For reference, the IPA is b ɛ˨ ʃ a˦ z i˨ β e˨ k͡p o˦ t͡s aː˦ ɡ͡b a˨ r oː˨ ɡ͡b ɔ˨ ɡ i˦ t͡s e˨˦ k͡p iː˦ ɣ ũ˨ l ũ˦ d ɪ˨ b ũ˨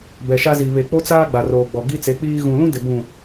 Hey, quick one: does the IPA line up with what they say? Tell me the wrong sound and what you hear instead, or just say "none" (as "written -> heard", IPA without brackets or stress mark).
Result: none